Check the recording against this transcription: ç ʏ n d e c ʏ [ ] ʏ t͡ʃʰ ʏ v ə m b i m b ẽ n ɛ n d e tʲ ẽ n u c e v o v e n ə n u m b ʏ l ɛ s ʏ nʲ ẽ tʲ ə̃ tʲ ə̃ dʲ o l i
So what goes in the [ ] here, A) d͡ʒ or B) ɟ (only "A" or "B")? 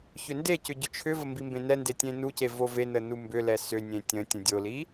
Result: B